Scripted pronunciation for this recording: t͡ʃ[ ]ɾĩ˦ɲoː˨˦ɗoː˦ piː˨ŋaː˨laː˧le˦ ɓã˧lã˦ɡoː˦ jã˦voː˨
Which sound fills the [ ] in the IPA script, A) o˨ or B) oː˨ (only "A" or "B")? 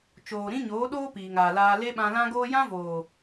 B